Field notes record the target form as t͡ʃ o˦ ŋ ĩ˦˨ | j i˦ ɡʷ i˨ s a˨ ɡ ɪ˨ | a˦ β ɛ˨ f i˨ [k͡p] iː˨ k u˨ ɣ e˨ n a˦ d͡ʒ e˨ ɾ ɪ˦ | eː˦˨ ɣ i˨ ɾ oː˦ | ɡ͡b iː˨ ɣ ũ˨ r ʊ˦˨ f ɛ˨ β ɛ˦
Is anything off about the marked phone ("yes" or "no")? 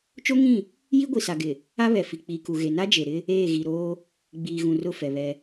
no